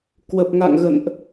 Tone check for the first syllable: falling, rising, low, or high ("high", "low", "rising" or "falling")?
low